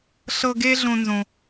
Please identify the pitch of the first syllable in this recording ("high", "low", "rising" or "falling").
high